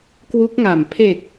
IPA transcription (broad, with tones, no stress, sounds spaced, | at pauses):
k w u˦˥ k̚ ŋ a˨˩ m pʰ e˨˩ k̚